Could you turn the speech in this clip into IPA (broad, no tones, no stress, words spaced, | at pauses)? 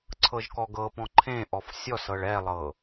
ǀʰɤʒkɔɡɤpɔ̃ ǃʰẽ ʔɔfsʲɔsɤɭ ɛlˠɤ